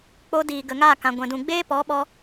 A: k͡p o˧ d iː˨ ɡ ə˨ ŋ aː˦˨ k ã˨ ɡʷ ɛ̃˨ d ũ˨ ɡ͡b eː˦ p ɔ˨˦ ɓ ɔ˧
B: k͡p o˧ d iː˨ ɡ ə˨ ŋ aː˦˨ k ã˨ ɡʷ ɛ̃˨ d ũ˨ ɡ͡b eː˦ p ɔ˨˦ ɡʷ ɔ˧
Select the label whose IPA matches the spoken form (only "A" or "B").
A